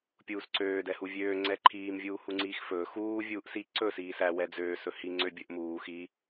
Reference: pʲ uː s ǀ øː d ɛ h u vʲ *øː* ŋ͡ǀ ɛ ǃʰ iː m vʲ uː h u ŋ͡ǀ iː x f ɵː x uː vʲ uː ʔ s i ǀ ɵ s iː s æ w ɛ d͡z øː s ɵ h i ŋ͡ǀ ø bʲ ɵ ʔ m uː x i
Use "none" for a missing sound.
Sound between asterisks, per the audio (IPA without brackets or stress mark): øː